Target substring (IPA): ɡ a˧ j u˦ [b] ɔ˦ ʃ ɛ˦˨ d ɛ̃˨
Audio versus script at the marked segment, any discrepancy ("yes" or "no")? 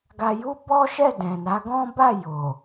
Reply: no